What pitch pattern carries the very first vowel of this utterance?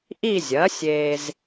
falling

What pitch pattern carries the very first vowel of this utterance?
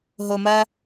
low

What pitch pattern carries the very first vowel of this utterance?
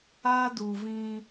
high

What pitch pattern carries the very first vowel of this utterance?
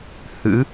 rising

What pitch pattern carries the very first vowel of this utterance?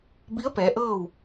rising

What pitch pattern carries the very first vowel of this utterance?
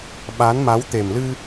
rising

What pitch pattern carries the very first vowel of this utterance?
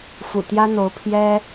low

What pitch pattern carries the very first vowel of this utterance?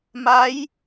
rising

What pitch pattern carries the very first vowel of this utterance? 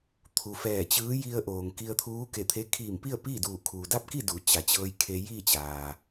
low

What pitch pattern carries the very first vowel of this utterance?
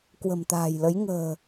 low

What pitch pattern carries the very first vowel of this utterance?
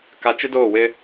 low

